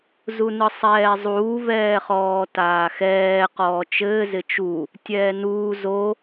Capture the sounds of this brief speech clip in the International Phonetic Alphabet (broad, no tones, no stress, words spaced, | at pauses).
zunɯsˤɛːzˤuː vɛːχɔːtaːxɛː qɔːt͡ʃɘː zɪt͡ʃu | tʲɛːnuː zo